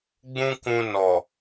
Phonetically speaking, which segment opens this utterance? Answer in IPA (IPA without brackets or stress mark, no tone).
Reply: ɡ͡b